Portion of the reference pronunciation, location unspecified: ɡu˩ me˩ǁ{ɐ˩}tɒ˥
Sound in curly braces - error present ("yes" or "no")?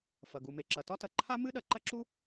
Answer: no